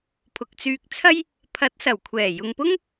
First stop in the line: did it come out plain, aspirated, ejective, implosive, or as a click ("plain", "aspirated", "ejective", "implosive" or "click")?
aspirated